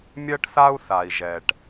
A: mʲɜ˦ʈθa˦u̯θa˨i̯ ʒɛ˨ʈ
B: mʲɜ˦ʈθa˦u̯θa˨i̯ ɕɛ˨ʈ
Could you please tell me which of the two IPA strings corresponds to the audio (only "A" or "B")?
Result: A